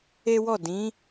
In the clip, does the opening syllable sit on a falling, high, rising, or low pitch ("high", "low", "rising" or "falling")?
high